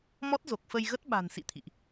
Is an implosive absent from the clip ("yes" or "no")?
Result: no